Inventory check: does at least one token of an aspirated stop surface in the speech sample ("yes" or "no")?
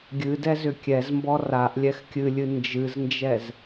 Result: no